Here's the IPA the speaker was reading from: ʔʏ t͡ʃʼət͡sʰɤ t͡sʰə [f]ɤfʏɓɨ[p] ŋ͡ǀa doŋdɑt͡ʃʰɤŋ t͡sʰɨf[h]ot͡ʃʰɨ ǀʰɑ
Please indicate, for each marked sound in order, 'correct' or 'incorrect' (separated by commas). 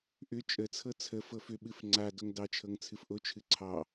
correct, incorrect, incorrect